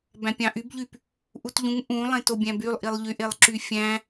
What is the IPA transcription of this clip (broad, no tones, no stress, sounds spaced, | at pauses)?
b æ̃ pʲ ɑ̃ ʔ y b ʎ y p | ʔ u t ʎ ũ ŋ ʔ ũ lˠ ẽ t o bʲ æ̃ b y lˠ ʔ i lˠ ʎ y ʔ e lˠ ǁ y fʲ æ̃